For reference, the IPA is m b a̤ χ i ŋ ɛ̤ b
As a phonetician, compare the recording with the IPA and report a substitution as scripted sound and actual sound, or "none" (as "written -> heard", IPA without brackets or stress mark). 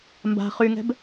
i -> y